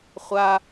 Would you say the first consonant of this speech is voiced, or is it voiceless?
voiceless